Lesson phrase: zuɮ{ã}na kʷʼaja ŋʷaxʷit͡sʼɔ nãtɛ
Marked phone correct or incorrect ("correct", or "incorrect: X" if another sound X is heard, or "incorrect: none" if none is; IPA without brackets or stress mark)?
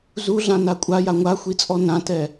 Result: correct